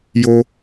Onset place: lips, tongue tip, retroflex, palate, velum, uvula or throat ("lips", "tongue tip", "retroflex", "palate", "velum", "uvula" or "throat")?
palate